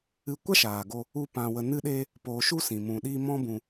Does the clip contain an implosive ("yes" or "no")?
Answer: yes